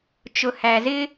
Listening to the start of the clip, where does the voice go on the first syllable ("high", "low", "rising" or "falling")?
low